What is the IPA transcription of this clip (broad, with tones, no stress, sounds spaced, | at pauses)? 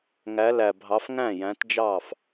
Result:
ŋ æ˨˦ l æ˨˩ bʱ ɑ˨˦ f ŋ æ̃˥˩ j æ̃˨˦ t d͡ʒ ɑ˥˩ f